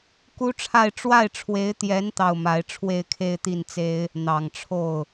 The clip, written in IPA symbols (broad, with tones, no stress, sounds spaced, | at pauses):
k u˥ ʈ͡ʂʰ a˥˧ ɪ̯ ʈ͡ʂ w a˥˩ ɪ̯ ʈ͡ʂʰ w e˧˥ ɪ̯ t̪ j ɛ˧˥ n t̪ ɑ˥˩ ʊ̯ m a˧˥ ɪ̯ ʈ͡ʂʰ w e˥˧ ɪ̯ kʰ e˥˧ ɪ̯ t̪ i˥˩ n t͡s e˥ ɪ̯ | n̪ ɑ˨˩ ŋ ʈ͡ʂʰ o˥˩ ʊ̯